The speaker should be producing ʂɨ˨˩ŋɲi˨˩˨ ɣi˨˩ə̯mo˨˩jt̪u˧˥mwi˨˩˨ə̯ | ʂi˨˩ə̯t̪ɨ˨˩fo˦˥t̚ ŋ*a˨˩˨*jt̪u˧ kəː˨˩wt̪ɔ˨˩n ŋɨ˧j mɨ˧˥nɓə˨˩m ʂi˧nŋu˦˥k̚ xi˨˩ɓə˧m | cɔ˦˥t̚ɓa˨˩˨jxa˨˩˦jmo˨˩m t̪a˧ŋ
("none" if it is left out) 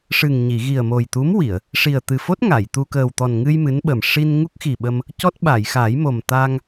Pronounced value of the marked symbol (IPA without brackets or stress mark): a˨˩˨